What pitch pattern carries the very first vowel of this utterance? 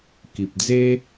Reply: low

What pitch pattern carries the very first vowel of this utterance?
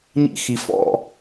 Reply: high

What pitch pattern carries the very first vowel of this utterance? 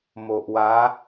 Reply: low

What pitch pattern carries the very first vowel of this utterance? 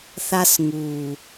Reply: high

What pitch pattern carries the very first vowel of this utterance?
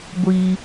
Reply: high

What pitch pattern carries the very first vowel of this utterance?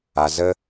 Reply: low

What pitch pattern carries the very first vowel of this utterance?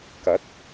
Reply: rising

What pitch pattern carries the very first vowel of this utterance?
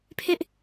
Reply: high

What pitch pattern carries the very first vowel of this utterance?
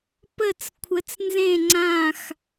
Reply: falling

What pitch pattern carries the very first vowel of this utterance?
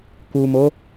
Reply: low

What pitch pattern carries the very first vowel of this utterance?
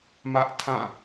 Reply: high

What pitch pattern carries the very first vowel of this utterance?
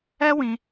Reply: high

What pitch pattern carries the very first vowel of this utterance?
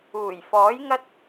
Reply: low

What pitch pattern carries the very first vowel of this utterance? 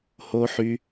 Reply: high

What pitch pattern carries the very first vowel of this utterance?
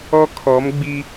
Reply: high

